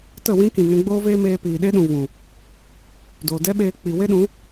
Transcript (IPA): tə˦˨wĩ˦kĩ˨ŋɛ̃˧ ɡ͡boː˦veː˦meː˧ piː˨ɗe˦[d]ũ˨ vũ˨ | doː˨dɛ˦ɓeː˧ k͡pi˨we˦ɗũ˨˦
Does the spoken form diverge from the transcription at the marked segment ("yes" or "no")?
yes